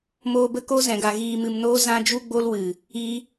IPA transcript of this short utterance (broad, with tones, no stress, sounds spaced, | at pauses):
m oː˧ b ə˦ k o˦ z ɛ̃˨ ɡ a˨ ɣ iː˨ m ɨ˨ m n oː˧ z ã˧ d͡ʒ u˦ ɡ͡b o˦ l w ɨ˨ | i˦